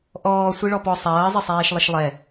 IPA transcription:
ʔ ɔː sʷ i ɭ ɔ p ɔ sˤ ɐː zˤ ɪ sˤ ɛː ʃ lˠ ɪ ʃ lˠ ɛ

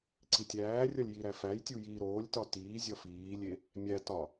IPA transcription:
ǀ i tʲ æː rʲ ɒ lʲ j i ɾ æ f æ j tʲ u j iː ɾ oː lʲ t ɒ t iː zʲ ɒ f iː lʲ e | mʲ æ t ɒ

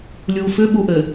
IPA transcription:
lʲ u f ʏ ɓ u ʔ ɘ

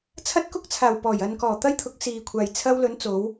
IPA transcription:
t͡sʰ ɐ˥ t̚ k ʊ˥ k̚ t͡sʰ aː˨˩ w p ɔː˨˩ j ɐ˨ n k ɔː˨˩ t̪ ɐ˥ j t̪ʰ ʊ˨˥ k̚ s iː˨ kʷʰ aː˨ j t͡sʰ ɐ˧ w l ɵ˨˧ n t͡s o˨˧ w

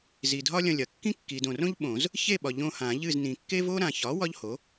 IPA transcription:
z i˨ dʱ ɒ˥ lʲ ɐ̃˦˨ lʲ ɐ˩˥ kː ĩ˥ kː i˨ d õ˨ r õ˥ ʎ ɓ õ˨˩˦ z | ç e˦˨ ɓ ɒ˨ ʎ õ˦˨ h ã˨˩˦ ʎ ɨ˦˨ z n ĩ˨ kː e˥ v o˥ ɾ ã˨ ç ɒ˩˥ w ɒ˥ ʎ h o˩˥

